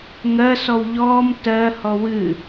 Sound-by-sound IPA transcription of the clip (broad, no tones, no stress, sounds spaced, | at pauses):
ŋ ɜ s ɔ w ʎ ɔː m t ɜ h ɔ w ɨ